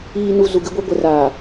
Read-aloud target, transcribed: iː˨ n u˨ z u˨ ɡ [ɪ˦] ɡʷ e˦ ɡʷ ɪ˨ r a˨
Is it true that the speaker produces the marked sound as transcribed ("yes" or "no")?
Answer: yes